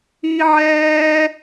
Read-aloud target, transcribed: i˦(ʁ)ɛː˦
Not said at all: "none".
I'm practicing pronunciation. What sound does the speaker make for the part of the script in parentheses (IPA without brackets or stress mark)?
ʕ